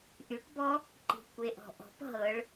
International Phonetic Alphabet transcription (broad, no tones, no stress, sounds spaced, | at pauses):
ʔ y ʈ b ɔ | ǃ i̤ kʷ e ʔ ɔ̤ ʔ ɔ̤ p ɦ ɤ ɭ